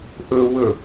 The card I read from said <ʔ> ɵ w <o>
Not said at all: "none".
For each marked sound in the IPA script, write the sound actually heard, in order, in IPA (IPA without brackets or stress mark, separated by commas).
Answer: ʔ, ɵ